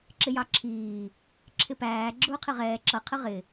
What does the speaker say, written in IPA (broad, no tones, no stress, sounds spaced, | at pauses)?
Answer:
ǁ ɪ j ɑ ǁʰ iː | ǁʰ ɪ p æː ɡ͡ǁ ʊː qʰ ɪ ʁ ɛː ǁ ʌ qʰ ə ʁ ɪ